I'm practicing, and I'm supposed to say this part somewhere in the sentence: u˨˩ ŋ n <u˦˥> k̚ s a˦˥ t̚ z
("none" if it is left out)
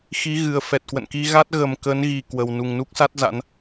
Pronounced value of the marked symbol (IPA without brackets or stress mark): u˦˥